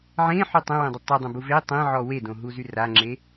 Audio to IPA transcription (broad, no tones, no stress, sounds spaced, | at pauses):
ʕ ẽ ħ y tˤ ə̃ w ẽ dˤ ə tˤ ə dˤ ə̃ b u v e tˤ ẽ ʕ ɔ w e d õ ɦ u z y r a ŋ͡ǁ e